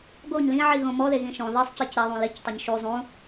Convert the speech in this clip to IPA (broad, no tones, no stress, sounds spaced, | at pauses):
ɡ o ɲ l ĩ ʕ i ɣ õ m ɔ ð e ɣ ĩ ʃ ɔ̃ ð i sˤ c i c ɾ ɛ ðˤ ũ l i c tˤ ɘ ɲ ʃ u zˤ ũ